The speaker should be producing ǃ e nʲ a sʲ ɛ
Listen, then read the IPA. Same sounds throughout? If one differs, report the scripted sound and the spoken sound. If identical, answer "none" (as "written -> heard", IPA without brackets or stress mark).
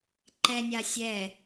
e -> ɛ